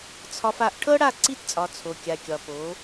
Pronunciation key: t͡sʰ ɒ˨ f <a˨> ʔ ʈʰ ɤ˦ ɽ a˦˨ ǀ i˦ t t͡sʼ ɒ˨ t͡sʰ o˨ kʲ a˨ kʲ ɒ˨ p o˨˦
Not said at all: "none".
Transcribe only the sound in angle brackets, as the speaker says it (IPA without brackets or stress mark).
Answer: a˨